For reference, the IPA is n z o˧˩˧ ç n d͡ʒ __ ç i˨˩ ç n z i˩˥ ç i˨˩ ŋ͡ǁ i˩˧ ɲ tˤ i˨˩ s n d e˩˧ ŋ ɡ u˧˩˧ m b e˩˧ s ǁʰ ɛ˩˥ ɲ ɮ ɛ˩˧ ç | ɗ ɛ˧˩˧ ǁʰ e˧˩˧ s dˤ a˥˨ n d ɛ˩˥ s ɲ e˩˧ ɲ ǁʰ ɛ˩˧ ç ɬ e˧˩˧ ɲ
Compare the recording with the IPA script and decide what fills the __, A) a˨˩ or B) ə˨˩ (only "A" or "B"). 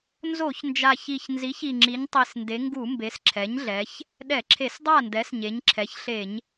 A